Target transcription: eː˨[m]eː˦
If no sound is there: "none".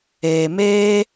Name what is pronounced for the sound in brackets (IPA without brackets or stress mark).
m